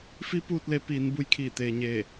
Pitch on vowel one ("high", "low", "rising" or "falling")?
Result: rising